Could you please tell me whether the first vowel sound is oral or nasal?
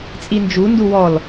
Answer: oral